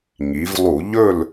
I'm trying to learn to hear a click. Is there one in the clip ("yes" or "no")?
no